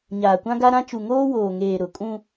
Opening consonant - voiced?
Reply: yes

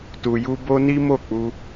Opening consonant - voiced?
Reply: no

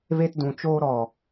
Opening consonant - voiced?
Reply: yes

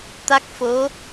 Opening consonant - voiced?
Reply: no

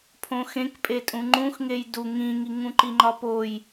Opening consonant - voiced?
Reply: no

